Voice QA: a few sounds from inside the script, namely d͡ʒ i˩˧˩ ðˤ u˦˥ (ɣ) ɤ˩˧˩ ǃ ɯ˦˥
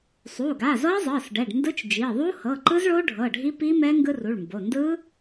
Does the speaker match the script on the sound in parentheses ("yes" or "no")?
no